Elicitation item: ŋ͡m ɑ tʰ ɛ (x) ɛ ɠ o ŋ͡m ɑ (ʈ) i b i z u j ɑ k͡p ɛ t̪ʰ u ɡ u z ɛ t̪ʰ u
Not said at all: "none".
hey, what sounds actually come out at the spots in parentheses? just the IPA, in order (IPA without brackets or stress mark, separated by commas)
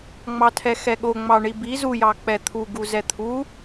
x, ɳ